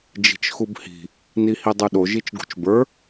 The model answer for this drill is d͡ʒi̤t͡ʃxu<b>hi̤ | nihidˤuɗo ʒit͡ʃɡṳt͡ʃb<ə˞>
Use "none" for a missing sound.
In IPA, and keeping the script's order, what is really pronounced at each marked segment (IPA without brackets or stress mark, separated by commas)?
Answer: b, ə˞